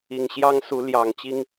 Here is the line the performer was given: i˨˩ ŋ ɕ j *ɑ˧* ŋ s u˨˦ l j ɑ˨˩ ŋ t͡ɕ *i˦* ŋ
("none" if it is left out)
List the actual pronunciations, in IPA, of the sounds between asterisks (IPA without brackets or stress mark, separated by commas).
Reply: ɑ˦, i˨˦